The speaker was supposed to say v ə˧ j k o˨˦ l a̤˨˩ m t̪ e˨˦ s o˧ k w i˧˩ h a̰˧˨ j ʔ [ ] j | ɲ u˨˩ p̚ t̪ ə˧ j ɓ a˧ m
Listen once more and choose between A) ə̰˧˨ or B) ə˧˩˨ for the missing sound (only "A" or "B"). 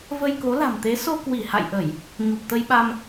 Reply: B